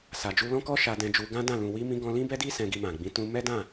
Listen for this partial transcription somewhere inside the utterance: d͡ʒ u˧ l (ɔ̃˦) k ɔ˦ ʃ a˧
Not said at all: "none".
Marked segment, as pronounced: ɔ̃˦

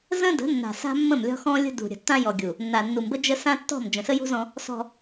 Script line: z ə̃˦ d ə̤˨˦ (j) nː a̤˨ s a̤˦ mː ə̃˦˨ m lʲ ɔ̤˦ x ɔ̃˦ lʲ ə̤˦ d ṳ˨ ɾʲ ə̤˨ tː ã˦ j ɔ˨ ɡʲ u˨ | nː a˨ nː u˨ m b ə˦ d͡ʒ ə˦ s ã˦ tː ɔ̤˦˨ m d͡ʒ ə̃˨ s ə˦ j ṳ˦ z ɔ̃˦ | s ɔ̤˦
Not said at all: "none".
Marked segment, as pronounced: none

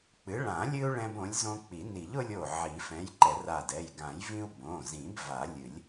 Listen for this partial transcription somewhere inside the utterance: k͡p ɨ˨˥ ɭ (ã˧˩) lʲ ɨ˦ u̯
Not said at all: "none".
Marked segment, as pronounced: ã˨˩˦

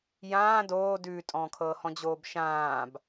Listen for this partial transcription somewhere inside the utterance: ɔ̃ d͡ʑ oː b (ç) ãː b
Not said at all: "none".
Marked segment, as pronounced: ʃ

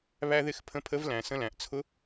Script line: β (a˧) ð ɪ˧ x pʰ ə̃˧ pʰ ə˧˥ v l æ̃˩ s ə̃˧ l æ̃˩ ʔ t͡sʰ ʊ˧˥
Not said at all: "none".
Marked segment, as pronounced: æ˧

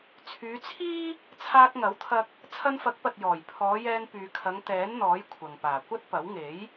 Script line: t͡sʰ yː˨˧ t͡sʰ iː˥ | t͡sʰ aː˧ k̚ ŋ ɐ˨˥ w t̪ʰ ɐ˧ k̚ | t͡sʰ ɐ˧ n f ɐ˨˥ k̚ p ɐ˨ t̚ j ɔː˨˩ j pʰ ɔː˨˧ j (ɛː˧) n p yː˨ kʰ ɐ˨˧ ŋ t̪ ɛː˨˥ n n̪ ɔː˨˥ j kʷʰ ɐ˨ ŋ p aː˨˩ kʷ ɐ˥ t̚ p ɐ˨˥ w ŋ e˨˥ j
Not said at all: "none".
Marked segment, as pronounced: ɛː˧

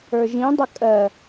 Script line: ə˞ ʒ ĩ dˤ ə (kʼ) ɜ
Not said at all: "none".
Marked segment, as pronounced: kʼ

